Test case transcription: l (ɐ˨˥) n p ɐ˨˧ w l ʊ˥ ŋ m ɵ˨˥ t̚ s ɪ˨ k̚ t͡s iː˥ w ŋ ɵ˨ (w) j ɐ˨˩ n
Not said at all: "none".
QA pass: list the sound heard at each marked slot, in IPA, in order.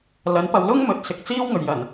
ɐ˨˥, ɥ

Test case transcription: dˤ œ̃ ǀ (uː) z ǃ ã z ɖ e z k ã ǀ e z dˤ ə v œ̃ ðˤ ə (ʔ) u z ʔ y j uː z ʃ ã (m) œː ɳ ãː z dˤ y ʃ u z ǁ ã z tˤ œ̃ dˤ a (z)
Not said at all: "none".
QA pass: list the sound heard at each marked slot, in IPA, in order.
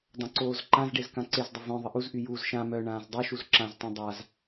oː, ʔ, m, z

